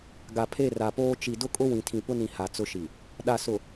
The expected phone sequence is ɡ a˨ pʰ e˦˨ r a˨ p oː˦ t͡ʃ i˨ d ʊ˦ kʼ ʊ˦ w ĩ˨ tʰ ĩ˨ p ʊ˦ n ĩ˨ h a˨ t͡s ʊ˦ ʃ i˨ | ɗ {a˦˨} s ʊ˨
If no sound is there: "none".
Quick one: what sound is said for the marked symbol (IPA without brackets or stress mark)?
a˨